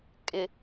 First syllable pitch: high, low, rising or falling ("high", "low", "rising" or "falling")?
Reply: low